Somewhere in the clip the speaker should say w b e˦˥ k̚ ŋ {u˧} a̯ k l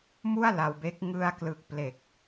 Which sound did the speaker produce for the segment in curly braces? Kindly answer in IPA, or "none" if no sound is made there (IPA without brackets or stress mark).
ɯ˧